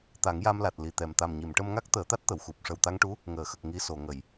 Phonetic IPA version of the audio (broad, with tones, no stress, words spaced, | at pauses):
t̪a˨˩˦ŋja˧mla˨˩t̚ li˨˩t̪ɛ˨˩m t̪a˨˩mɲi˨˩˨mʈə˧mŋa˦˥k̚ t̪əː˨˩˦t̪a˦˥t̚t̪ə˨˩˨wxu˨˩p̚ ʂə˨˩wt̪a˧ŋʈu˧˥ | ŋəː˨˩˨xə˨˩k̚ ŋi˧so˨˩˨ŋə˨˩˨j